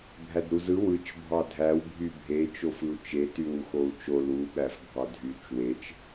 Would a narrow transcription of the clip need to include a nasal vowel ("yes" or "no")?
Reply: no